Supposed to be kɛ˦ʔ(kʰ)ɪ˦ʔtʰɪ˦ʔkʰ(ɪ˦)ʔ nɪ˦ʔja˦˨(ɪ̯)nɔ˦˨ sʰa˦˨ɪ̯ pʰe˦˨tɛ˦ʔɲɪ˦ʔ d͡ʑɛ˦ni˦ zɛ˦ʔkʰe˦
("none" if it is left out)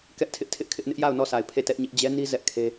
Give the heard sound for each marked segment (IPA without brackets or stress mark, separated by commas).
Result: tʰ, ɪ˦, ʊ̯